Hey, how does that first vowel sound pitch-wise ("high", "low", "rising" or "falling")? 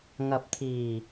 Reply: rising